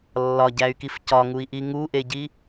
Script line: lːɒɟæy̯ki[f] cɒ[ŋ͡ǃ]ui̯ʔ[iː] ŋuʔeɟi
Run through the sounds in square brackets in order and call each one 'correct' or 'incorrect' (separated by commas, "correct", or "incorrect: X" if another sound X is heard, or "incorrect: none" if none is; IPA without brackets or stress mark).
correct, incorrect: ŋ, incorrect: i